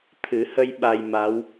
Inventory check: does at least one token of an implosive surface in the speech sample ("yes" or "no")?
yes